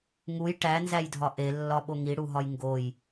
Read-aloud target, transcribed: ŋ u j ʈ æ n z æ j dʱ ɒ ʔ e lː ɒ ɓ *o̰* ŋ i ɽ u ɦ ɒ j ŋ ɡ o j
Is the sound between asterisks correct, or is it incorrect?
incorrect